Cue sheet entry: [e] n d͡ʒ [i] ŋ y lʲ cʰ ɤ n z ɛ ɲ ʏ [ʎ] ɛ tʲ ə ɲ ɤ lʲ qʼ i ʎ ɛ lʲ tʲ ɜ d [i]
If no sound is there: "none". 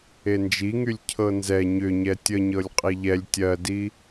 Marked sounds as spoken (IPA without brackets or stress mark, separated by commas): e, i, ɲ, i